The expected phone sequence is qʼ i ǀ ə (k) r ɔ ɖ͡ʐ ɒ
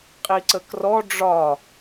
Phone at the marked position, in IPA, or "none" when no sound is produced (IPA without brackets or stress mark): k